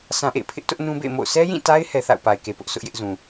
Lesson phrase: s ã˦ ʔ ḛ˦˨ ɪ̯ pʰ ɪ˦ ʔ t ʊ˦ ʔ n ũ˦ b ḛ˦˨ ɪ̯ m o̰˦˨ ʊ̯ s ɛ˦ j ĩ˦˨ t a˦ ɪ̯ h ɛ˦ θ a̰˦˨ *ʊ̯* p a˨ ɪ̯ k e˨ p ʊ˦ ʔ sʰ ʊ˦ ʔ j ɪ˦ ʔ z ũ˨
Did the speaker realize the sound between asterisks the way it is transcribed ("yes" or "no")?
yes